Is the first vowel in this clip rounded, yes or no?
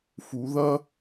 yes